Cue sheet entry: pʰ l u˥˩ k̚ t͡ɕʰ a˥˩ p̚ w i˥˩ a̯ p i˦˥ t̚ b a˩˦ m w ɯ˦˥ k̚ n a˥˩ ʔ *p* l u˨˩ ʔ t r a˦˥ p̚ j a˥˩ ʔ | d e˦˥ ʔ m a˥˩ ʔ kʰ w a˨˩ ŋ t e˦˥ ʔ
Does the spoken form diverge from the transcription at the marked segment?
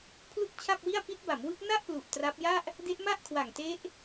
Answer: no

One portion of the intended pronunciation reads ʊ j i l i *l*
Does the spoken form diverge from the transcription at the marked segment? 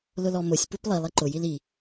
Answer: yes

